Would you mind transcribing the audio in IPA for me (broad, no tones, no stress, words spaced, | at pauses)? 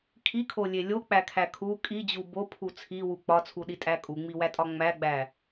kʰikʰolʲe lʲok͡pækʰæ kʰu kʼid͡ʑu bopʰu t͡sʰiwu k͡pɒt͡sʰuɗitʼæ kʼuŋ͡miwætʼɒ ŋ͡mæɡ͡bæ